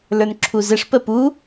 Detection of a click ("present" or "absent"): present